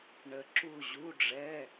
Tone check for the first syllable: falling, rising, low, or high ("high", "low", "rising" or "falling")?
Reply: low